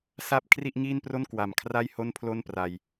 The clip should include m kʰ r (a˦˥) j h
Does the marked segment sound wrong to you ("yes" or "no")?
yes